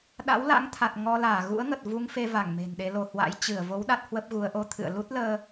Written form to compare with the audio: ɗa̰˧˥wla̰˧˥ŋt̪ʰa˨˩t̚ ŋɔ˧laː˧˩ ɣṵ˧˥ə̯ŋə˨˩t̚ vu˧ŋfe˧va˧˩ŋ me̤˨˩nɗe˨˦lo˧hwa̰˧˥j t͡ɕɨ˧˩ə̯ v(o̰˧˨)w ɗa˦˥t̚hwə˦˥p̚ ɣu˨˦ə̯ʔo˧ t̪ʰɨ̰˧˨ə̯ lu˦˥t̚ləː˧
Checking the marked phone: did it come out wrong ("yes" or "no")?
yes